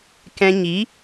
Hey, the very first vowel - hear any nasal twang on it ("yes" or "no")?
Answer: yes